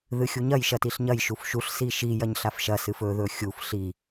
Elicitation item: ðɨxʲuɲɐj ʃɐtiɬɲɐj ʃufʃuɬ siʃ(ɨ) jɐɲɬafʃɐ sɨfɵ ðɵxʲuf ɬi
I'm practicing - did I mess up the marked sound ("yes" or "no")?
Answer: yes